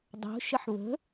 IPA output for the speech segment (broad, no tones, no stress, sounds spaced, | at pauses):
dˤ o̤ ʃ ə ħ β ə̤